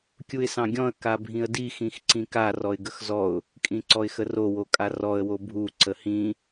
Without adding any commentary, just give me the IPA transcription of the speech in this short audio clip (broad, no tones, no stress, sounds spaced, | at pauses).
kʲ u ɪ̯ s ɑ̃ ɡʲ ɔ̃ ə̯ k a bʱ ĩ ə̯ d i x ĩ x ǀ ĩ k a r ɔ ɪ̯ ɡ ə x z ɔ ʊ̯ | kʼ ĩ ǀ ɔ ɪ̯ x ə r o w o kʼ a r ɔ ə̯ w o bʱ u ǀ ə h ĩ